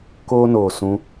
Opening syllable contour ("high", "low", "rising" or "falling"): high